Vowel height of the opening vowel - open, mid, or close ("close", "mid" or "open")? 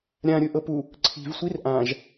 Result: open